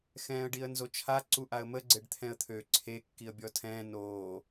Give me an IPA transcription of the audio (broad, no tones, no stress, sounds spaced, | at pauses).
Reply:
x ɛ̃ː ə̯ ɖ i ə̯ n z o t͡ʃʰ a ǀ u ʔ a ə̯ m ə ɡ͡ǀ e ɖ t̪ʰ ɛ̃ ə̯ t̪ʰ ø ǀʰ e kː i ə̯ bʲ ɔ tʰ ɛ̃ː n oː